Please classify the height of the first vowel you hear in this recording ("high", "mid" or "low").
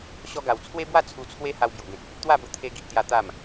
mid